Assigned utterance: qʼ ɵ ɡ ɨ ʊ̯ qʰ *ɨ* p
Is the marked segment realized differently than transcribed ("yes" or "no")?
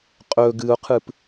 no